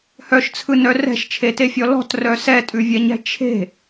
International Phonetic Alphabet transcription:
h œ ʃ t͡sʰ ɯ n œ r ɛ̤ ʃ t͡ʃʰ e t e fʲ ɔ l ɔ̤ t r œ s ɛ tʼ ʉ vʲ ɛ ɲ ɛ̤ t͡ʃʰ e̤

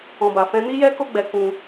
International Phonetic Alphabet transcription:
ɔ̃˧ b a˧ f ɛ̃˦ n i˦ j ɛ˦ k o˦ ɡ͡b ɛ˧ k ũ˧

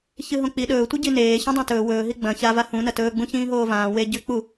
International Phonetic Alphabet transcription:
ç ɨ ɦ õ k͡p i ɗ ɵː tʷ i ɟ i n eː ç ũ dˤ ã t ɵː w ɵː ɦ i ɡ͡b ɐ̃ ç a v a h ũ n ɐ t ɵː ɡ͡b ũ ç ĩː ɦ oː v ãː w e ɟ ʉ k͡p u

